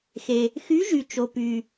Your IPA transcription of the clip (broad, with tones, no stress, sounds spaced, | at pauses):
x e˨ | x y˧˥ ʒ y˨ t͡ʃ o˨ p y˨